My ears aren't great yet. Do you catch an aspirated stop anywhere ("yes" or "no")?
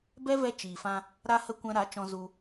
no